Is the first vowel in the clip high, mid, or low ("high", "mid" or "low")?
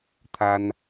low